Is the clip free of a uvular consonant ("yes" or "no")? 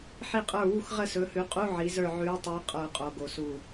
no